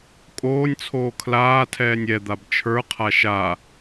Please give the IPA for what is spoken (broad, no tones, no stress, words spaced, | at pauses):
kʼoːnʲt͡sʰoː kʰlaː tʰɛːnʲɛ d̪abt͡ʃʰə˞ qʰaʃa